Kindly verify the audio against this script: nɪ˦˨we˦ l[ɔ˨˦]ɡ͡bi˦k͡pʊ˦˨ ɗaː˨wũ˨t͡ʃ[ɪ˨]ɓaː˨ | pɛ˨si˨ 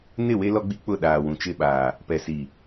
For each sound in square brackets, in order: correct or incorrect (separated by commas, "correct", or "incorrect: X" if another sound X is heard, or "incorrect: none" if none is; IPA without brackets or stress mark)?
incorrect: ɔ˦, incorrect: ɪ˦˨